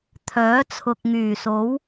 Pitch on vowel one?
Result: rising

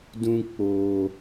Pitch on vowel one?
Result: high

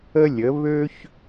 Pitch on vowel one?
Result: high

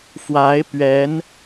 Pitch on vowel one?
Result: rising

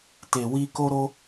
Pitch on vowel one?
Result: low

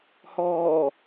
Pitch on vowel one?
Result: low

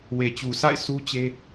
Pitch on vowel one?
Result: low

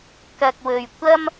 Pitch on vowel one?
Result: low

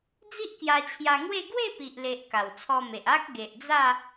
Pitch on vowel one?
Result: high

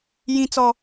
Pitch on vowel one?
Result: high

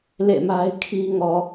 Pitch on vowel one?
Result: falling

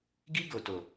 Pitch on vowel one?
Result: high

